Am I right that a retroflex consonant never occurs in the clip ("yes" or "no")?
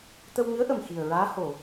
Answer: yes